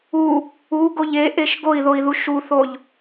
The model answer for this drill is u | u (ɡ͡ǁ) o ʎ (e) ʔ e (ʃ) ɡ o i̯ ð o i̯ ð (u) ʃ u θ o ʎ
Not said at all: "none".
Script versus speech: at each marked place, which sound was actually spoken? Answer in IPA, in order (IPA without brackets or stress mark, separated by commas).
ɡ, e, ʃ, u